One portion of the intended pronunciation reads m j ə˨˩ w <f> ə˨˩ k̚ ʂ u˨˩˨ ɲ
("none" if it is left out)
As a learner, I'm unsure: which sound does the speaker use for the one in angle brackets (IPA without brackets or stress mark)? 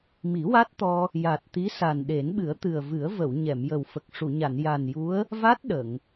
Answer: f